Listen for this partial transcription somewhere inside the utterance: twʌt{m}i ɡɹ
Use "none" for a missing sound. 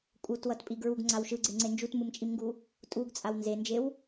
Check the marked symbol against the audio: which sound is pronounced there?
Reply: pʼ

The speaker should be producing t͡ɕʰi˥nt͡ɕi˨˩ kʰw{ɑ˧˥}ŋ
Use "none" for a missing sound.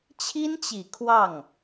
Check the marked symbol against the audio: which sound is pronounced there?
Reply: ɑ˥˩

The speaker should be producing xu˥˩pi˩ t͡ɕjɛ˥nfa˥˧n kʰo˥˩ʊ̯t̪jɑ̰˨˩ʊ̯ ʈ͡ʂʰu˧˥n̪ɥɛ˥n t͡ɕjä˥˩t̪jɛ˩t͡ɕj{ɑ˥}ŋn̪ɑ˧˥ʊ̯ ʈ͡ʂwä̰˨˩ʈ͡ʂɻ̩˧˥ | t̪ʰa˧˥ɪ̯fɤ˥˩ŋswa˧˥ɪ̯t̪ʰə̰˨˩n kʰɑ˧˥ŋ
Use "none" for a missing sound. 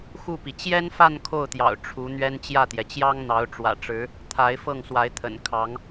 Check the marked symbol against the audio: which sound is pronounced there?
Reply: ɑ˥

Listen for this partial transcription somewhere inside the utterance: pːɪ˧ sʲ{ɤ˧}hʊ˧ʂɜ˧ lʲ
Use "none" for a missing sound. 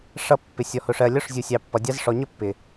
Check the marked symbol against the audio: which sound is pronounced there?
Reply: ɔ˧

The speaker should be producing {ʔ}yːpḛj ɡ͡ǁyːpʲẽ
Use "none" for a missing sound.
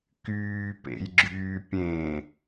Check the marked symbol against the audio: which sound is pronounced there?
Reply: k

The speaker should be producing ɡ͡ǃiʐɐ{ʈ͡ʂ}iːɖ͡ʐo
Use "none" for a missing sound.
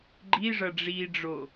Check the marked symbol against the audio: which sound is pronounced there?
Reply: ɖ͡ʐ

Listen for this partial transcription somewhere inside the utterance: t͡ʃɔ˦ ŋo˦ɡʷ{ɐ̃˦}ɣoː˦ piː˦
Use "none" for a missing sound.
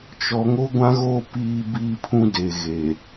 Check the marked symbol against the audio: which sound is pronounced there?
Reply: ã˦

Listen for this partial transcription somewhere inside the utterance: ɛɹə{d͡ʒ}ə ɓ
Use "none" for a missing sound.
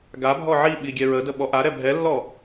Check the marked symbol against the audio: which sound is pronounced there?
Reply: d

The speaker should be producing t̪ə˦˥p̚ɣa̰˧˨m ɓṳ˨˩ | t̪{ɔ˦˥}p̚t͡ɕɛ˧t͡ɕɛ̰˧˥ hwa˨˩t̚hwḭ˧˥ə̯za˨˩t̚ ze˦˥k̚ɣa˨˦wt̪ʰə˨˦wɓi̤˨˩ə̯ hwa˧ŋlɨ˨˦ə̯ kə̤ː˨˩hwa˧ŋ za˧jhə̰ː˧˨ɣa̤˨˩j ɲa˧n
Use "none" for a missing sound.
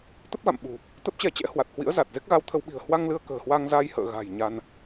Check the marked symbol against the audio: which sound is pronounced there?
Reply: ə˦˥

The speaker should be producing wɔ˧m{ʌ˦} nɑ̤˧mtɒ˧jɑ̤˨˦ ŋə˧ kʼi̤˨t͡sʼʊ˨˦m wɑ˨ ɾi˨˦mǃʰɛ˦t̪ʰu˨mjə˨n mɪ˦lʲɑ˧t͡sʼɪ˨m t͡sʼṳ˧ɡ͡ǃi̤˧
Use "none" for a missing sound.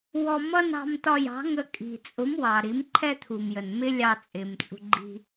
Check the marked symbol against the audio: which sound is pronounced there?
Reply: ʌ˦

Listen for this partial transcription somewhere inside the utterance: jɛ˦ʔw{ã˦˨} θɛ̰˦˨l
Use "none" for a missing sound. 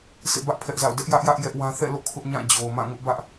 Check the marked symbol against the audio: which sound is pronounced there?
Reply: ã˦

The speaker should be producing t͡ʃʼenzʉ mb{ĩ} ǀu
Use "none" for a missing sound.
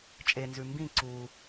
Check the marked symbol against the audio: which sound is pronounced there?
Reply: ĩ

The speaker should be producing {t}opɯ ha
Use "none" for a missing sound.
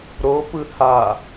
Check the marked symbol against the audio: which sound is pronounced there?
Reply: ɾ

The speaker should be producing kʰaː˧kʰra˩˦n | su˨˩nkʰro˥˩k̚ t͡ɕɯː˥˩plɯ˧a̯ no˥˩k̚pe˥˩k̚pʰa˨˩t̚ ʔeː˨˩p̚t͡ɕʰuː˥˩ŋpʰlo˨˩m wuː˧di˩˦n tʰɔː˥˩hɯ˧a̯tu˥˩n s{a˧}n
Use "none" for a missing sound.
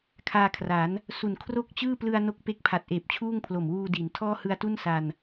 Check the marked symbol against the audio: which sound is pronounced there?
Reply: a˧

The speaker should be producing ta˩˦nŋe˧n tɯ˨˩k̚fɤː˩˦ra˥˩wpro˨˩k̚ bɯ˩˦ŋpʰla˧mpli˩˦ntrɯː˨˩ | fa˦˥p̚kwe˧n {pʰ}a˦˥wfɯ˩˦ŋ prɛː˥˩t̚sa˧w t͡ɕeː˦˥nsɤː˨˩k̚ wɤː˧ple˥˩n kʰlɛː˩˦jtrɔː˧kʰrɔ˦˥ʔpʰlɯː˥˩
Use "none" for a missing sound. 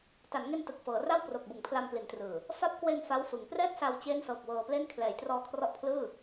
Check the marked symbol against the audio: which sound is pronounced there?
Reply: f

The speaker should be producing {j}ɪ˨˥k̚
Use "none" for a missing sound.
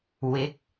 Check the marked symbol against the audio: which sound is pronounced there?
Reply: w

